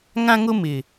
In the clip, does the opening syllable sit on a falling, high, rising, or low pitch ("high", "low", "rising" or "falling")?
high